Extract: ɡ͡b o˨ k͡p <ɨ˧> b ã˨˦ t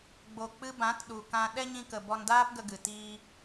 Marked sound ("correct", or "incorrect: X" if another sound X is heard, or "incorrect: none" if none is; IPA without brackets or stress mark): correct